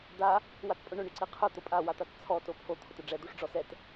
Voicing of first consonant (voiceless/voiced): voiced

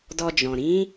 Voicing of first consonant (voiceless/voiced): voiced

